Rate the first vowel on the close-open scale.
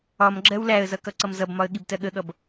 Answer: open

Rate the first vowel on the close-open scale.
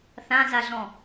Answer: open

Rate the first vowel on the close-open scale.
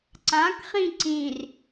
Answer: open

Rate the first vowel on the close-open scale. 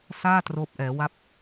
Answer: open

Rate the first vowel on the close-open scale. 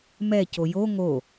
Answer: mid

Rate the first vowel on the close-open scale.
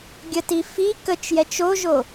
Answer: mid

